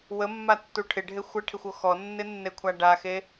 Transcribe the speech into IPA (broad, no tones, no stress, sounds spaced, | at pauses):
w ə mː a tː u ʈʰ ɪ ɖʱ e xʷ ə ʈʰ ɪ xʷ o x ɔ nː ɪ nː e kʷʰ a ɖ a x e